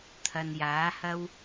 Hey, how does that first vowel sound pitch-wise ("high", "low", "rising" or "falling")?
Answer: low